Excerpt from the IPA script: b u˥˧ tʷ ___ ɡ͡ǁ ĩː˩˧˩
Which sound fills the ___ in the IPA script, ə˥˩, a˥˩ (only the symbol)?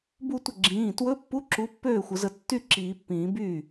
ə˥˩